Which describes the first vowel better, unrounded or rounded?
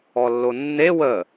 rounded